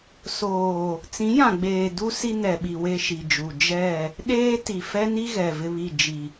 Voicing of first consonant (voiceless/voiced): voiceless